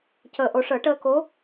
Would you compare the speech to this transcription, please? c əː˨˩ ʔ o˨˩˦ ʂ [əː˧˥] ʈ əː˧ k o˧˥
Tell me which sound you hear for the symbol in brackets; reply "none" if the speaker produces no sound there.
əː˨˩˦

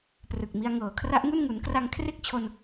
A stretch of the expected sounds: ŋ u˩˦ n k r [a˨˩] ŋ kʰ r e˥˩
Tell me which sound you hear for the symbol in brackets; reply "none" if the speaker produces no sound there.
a˧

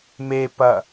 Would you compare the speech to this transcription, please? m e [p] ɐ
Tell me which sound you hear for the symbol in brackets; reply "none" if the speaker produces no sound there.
p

